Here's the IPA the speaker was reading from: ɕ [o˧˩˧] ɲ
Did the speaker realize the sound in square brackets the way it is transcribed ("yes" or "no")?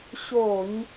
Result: yes